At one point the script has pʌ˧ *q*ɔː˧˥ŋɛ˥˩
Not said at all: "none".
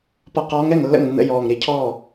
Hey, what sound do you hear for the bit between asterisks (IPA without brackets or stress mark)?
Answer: q